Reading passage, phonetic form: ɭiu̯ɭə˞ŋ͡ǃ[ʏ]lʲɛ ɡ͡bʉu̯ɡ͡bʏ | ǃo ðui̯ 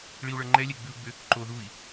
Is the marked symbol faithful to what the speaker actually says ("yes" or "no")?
no